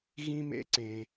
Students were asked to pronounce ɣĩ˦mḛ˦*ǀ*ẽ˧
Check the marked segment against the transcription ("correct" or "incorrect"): correct